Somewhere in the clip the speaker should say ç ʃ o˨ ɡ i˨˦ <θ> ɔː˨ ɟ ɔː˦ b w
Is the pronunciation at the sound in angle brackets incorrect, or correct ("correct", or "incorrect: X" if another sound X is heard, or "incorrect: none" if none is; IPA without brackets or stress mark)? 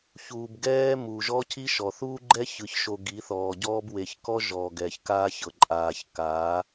correct